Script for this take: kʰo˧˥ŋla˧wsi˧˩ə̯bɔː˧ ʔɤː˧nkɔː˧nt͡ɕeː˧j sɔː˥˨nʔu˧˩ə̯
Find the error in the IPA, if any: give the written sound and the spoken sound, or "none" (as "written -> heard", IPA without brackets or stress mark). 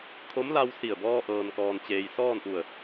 ŋ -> m